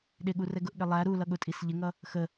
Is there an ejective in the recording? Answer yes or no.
yes